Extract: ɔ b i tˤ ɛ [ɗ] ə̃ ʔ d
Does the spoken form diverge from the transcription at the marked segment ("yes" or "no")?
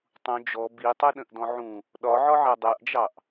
no